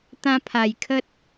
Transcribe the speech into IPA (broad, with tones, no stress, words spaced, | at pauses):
t̪ã˧pʰa˨˩jkʰə˦t̚